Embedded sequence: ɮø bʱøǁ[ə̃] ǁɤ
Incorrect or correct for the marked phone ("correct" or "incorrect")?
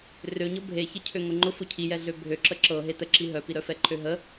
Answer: incorrect